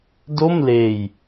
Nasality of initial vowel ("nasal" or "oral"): oral